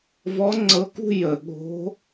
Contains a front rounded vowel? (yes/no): no